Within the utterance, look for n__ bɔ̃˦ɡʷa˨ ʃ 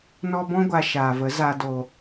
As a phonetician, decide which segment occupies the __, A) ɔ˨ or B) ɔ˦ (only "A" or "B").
B